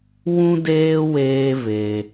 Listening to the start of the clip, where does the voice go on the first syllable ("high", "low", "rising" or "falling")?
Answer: high